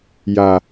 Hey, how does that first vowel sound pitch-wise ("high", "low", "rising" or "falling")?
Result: low